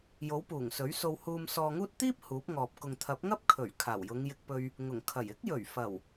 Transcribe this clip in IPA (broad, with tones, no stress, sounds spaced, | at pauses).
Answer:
j o˨˥ w p uː˨˩ ŋ s ɵ˨˥ ɥ s o˧ w h uː˧ m s ɔː˧ ŋ uː˥ t̚ t̪ iː˥ p̚ h uː˨˥ p̚ ŋ ɔː˨ p̚ k ʊ˨ ŋ t̪ʰ ɐ˨˥ p̚ ŋ ɐ˥ p̚ kʰ ɵ˨˩ ɥ kʰ aː˨˩ w j ʊ˨˧ ŋ j ɪ˧ k̚ p ɵ˧ ɥ | ŋ ʊ˨˩ ŋ kʰ ɐ˨˩ j ɪ˨˥ k̚ j ɵ˨˩ ɥ f ɐ˨˩ w